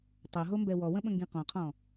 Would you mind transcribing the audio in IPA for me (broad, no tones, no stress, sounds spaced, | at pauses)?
tˤ ʌ ɦ o m b ɛ w ɔ w ə̃ ɓ ə̃ ŋ ɡ ĩ q ɔ̃ qʰ ɔ̃